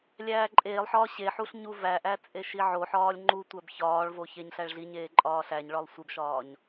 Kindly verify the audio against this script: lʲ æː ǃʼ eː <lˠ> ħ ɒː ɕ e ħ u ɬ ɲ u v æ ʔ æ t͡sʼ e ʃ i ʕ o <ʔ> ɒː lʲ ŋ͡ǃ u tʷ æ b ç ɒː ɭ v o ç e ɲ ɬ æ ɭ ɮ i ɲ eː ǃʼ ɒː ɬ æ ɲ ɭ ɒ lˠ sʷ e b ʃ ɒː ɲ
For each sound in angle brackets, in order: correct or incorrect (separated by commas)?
correct, incorrect